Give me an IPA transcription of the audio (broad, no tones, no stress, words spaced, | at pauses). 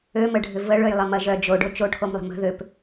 øməɖʱʏ vəɭøjlˠəmɐ ʒœ d͡ʒoɖo t͡ʃoʈʰomlˠə̤ mə̤ ðøp